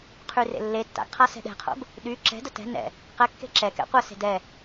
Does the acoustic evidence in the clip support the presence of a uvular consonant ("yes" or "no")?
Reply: yes